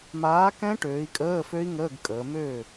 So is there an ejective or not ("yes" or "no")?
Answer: yes